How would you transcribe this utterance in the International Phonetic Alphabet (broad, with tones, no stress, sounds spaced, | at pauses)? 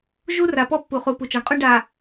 ʒ u˦ r a˨ p ɔ˦ pː u˨ χ u˨ p u˨ t͡ʃ ɔ˨ ɳ qʼ u˦ ɳ ɖ a˨